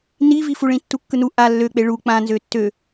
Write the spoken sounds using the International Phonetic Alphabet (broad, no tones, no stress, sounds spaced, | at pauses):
n i v i f u ɭ ĩ tː u kː ɯ n u ʔ a lː ø k͡p e ɭ u k͡p ã n z ø tː ø